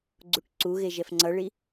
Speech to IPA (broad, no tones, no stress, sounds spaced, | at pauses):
ɡ͡ǀ u ʈ ǀ u ɣ e ʒ ɛ f ŋ͡ǀ ʌ ɭ i